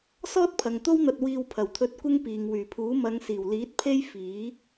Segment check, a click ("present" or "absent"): absent